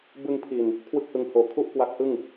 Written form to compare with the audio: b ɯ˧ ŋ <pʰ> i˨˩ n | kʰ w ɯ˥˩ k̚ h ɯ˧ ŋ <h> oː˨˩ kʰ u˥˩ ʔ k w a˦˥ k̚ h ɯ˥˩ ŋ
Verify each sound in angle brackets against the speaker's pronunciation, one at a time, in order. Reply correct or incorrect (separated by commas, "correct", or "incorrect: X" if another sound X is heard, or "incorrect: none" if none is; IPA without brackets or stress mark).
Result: correct, correct